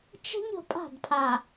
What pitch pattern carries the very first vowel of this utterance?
high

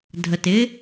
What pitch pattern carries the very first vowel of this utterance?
low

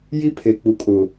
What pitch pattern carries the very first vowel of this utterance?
high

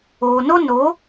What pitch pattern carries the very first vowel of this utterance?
low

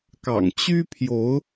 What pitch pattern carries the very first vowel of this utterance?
low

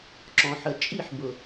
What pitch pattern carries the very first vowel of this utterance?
low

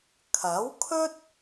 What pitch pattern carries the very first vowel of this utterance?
rising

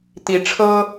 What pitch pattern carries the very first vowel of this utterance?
rising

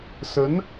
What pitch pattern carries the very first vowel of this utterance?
rising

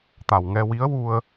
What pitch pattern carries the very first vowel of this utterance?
low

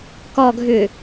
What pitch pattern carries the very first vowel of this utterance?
low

